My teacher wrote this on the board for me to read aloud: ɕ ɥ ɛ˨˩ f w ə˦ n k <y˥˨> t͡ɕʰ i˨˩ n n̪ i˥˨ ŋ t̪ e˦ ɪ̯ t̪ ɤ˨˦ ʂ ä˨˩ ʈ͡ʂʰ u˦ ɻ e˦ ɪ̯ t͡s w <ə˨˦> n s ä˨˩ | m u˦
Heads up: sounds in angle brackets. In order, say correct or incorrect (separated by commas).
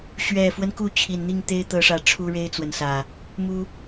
incorrect, incorrect